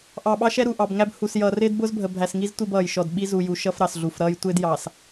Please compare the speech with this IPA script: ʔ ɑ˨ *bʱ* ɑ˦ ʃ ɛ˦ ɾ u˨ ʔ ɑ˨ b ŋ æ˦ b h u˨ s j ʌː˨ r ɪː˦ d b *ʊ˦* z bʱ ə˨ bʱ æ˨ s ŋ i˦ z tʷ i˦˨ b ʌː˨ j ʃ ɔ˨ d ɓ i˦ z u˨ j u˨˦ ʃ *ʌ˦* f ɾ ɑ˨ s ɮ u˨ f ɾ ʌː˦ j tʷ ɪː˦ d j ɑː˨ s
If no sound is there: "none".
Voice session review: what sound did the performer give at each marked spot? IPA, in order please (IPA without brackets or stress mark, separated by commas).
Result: ɓ, ʊ˦, ʌ˦